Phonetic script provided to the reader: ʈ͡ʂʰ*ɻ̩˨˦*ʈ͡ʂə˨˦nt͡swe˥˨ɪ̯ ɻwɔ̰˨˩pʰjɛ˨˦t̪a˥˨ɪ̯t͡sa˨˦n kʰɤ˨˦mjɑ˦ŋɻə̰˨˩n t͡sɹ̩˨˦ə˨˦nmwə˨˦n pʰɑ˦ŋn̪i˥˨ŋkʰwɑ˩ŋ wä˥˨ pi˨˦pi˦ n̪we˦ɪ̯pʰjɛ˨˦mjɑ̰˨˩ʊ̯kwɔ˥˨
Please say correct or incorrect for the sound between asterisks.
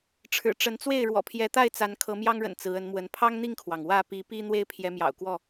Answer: incorrect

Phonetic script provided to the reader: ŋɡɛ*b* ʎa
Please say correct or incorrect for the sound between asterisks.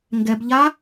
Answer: correct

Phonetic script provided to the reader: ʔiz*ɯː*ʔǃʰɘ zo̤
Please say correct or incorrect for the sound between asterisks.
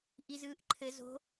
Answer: correct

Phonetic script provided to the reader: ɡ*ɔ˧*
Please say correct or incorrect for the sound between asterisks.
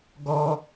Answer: correct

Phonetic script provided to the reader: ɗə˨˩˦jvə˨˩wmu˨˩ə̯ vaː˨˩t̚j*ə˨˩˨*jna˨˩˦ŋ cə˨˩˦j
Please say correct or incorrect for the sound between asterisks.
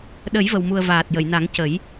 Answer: correct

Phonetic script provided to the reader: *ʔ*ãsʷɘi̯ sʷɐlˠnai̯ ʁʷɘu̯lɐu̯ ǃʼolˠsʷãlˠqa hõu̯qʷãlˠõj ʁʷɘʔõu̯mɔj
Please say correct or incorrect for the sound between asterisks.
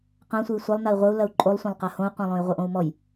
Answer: incorrect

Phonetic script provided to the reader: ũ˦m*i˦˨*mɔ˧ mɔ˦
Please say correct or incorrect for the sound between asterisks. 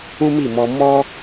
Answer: correct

